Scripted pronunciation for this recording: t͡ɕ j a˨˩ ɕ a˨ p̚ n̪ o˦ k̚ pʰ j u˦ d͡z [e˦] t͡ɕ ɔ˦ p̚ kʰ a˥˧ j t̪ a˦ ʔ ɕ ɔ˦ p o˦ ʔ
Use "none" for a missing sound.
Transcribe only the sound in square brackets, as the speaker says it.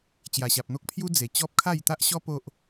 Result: e˨˩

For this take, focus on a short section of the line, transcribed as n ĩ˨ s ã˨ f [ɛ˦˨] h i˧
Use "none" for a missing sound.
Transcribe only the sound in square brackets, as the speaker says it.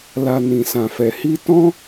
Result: ɛ˨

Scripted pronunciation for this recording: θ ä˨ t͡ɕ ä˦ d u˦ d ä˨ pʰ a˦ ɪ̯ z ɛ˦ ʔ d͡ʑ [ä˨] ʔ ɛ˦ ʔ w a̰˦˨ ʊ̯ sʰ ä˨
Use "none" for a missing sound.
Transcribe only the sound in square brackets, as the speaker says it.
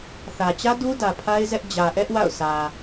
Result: ä˨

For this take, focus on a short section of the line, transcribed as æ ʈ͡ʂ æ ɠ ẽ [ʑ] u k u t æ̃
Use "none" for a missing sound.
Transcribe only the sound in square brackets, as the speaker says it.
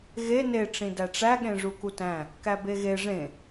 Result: ʐ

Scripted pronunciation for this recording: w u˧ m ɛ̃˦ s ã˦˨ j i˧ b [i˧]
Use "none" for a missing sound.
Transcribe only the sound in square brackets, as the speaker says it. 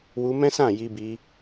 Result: i˧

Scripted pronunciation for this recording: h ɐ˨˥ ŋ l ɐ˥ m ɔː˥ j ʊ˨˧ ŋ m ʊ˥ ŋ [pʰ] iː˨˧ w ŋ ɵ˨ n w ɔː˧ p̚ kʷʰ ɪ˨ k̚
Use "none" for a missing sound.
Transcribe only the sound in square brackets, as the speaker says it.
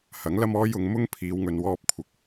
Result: pʰ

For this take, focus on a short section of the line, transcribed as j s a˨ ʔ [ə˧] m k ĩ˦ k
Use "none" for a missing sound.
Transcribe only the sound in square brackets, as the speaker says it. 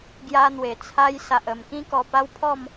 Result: ə˨˩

